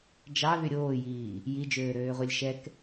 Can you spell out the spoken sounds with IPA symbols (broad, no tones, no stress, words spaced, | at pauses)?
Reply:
d͡ʒɑ ðyɾʲoːjiː | jid͡ʒøːɾøːʁʷilʲ ʃɛk